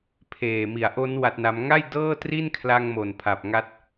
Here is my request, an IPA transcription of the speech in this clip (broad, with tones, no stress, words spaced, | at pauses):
pʰeː˨˩mi˨˩a̯ʔo˦˥n wa˦˥t̚na˦˥m ŋa˥˩j dɤː˥˩tri˥˩n kʰla˧ŋmo˨˩n pʰa˨˩p̚ŋa˦˥t̚